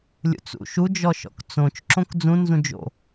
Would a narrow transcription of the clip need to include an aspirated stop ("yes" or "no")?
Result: no